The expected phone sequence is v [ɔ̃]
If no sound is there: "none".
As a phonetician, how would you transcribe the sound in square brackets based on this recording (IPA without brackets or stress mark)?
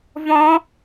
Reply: ɔ̃